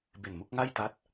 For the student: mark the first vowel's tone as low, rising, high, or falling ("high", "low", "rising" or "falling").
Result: low